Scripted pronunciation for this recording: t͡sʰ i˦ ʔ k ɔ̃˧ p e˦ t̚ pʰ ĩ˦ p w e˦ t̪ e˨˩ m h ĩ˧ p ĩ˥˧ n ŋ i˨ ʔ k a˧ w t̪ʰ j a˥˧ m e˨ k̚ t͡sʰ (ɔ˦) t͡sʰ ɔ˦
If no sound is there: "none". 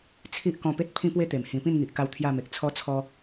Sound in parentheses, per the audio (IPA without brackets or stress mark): ɔ˦